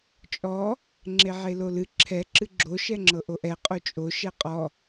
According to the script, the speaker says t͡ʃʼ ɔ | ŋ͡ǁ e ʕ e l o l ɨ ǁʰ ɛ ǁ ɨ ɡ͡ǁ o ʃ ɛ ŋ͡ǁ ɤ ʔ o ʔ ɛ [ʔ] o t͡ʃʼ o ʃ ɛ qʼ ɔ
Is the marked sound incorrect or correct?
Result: incorrect